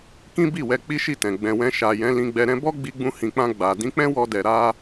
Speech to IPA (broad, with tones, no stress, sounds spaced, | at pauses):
k ĩ˦ b i˦˨ w ɛ˧ k͡p i˦ ʃ i˦˨ t ɛ̃˨ ɡ͡b ɛ̃˨ w ɛ̃˧ ʃ a˨ j ɛ̃˨˦ l ĩ˧ ɡ͡b ɛ˧ ɾ ɛ̃˦ b ɔ˦ ɡ͡b i˧ ɡ͡b ũ˧ h ĩ˨ k͡p ã˧ ɡ͡b a˨ d ĩ˨˦ k͡p ɛ̃˦ w ɔ˧ d ɛ˨ ɾ a˧